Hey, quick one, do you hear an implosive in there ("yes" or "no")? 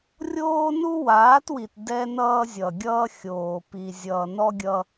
no